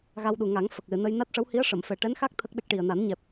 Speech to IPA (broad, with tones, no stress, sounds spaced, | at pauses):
ɣ a˧ w ɗ u˨˩ ŋ a˨˩˦ ŋ f ə˨˩ k̚ l ɨ˨˩˨ n ə˧ j n a˦˥ t̚ ʂ ə˧˥ w h i˧˥ ə̯ ʂ ə˨˩˨ m f ɛ˨˩ ʈ ɛ˧˥ n x a˦˥ k̚ t̪ʰ ə˦˥ k̚ ɗ ə˦˥ k̚ ʈ i˨˩ ə̯ n a˨˩˦ n ɲ ɛ˨˩ p̚